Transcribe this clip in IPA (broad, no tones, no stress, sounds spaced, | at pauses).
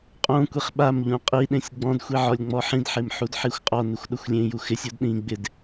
qʼ õ kʷ i χ ɓ a m ʎ ũ qʼ i ɗ ẽ sʲ ɡ͡b ɔ̃ d xʷ i ʕ ɔ lʲ ŋ͡m ɔ ħ ĩ d ħ e m ħ u d ħ i xʷ qʼ ɔ n ɪ xʷ ɗ ʊ xʷ lʲ ẽ j u x ɪ sʲ o d ɗ ĩ ɡ͡b ɪ d